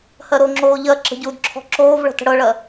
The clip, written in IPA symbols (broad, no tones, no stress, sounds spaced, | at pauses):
h ɜ ɾ o ŋ͡ǁ oː ʎ ɜ ǁ ə̤ ɟ u d ǁʰ ɔ̤ ǁ oː v ɭ ə̤ t ə̤ ɽ ɤ ɭ ɜ